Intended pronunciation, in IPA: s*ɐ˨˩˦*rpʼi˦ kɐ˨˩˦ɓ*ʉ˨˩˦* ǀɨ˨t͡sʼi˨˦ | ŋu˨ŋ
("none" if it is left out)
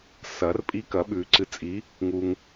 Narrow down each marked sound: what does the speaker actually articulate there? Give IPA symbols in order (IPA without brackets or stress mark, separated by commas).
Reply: ɐ˨˩˦, ʉ˨˩˦